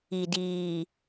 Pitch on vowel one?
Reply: low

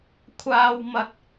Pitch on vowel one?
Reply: high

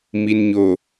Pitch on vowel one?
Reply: low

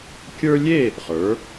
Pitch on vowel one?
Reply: high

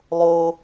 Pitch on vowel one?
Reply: high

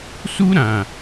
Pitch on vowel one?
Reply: high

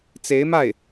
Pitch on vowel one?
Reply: rising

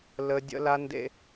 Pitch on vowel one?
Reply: high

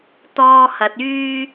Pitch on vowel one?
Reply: high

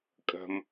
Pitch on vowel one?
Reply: low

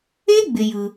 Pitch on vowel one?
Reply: high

